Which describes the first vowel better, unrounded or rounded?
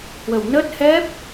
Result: unrounded